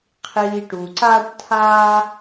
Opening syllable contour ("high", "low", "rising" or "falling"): low